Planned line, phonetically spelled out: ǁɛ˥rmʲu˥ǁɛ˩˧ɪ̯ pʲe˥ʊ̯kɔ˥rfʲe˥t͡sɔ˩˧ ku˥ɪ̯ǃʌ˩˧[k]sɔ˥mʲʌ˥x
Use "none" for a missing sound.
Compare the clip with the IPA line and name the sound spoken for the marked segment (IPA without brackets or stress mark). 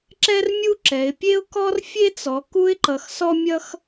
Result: x